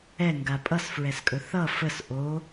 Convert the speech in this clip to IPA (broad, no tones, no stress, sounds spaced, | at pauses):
ɛ ŋ ɡ a pʼ ʌ s f ɹ ɛ s kʼ ɵ θ ʌ f ə s ʔ o